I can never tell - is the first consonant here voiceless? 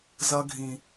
no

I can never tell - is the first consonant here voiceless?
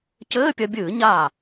yes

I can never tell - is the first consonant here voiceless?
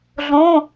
no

